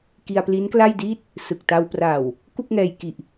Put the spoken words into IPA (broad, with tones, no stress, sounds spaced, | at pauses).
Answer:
k i˧ a̯ p l i˦˥ n k l a˥˩ j d iː˥˩ t̚ | s ɯ˨˩ k̚ t a˧ w p r a˨˩ w | k u˥˩ k̚ ŋ ɛː˧ j k i˨˩ ʔ